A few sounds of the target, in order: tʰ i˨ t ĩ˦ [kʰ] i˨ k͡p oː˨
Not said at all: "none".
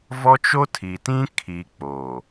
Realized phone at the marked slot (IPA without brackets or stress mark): kʰ